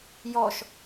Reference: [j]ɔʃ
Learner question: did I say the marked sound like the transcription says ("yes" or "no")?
yes